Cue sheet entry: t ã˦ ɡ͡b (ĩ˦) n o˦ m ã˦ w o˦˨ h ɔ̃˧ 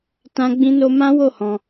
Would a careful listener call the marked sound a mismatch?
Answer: no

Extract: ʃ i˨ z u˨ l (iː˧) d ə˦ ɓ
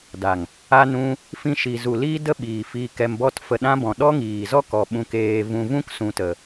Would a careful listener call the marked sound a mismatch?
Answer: yes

